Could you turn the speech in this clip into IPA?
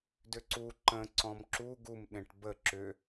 dʏǀu ǃə̃ ǀɔ̃mǁu ɡum ɗẽʈbə ǁʏ

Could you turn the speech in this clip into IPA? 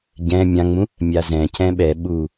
ɟɛ̃ mʲãŋ͡mũ | mʲazɛ̃cɛ̃ ɓɛ ɓu

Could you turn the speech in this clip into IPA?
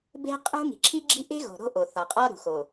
be̤˦qʼṳ˦ ŋi̤˨ǁʰi˦ɡ͡ǁi̤˦ ʔe̤˦ɣo̤˨ ɾo̤˦ʔo˨ θɒ˨qʼɒ˦ɾṳ˨ xo˨

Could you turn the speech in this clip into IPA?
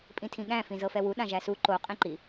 pʼĩtʰĩɠæ̃ fĩzɤfɛwu ɗãʒæsu ǃo qʼĩǃi

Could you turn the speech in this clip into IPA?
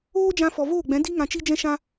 oː˦d͡ʒã˧fɔ˨ voː˦˨ɡ͡bɛ̃˨˦ di˦ ŋã˧t͡ʃi˦d͡ʒɛ̃˦ʃã˦

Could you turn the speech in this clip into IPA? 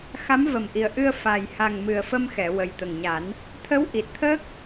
xa˧˥mvə˨˩mʔi˨˩ə̯ʔɨ˧ə̯ fa˨˩jha˨˩ŋ mɨ˨˩ə̯fə˧m xɛ˨˩˨ wə˨˩jt̪ə˨˩ŋɲa˨˩˦n | t̪ʰə˧˥wʔi˨˩t̚ t̪ʰəː˦˥k̚

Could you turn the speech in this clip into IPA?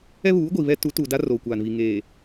ɛ˦ βuː˨˦ɡʷi˨βɛ˦ tu˨˦ tuː˨da˦ roː˨kʷaː˨nβi˨ ŋeː˨

